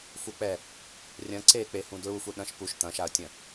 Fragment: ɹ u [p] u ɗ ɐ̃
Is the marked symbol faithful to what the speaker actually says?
no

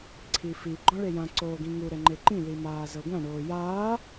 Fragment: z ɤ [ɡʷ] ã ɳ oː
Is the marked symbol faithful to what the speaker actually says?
yes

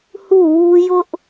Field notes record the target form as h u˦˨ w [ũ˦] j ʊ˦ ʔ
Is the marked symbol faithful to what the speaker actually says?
no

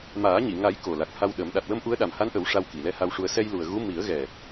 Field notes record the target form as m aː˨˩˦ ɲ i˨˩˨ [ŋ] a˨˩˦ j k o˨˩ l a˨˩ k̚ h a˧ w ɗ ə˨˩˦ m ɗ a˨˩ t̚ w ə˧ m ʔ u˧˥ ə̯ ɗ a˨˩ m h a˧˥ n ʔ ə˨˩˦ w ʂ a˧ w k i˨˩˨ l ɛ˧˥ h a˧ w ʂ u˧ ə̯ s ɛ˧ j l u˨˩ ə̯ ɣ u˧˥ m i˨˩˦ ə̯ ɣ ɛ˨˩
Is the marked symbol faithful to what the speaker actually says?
yes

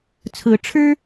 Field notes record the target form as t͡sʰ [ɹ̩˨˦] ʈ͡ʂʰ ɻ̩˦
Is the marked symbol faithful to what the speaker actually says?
yes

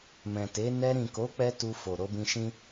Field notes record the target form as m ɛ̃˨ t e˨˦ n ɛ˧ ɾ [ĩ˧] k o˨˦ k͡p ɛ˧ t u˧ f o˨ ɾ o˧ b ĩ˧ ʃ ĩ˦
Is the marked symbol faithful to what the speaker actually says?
no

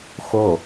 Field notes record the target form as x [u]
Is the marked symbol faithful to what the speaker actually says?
no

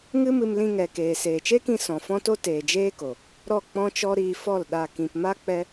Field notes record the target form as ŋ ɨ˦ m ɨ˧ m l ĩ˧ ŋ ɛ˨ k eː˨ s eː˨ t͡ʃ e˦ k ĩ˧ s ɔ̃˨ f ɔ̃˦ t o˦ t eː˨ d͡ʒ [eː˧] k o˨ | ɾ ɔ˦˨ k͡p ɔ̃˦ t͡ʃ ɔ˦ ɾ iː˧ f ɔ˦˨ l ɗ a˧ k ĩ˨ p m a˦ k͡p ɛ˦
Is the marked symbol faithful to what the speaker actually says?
no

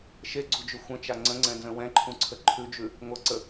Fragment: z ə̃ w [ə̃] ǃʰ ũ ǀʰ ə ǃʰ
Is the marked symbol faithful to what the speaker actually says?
no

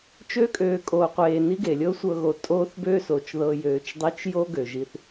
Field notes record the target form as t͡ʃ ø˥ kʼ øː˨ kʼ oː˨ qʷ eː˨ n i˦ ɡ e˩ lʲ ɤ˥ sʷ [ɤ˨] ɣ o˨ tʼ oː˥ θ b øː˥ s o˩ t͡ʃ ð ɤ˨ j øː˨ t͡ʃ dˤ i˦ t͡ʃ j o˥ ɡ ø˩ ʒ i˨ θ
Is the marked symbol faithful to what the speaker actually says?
no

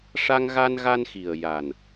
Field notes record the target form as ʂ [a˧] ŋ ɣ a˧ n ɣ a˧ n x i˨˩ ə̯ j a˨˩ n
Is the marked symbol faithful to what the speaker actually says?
yes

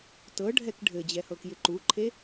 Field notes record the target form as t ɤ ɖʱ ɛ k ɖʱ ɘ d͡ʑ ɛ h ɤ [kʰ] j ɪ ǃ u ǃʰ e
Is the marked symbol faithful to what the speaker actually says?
no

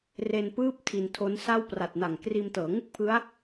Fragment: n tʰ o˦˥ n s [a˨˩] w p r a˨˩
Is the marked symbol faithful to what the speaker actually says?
no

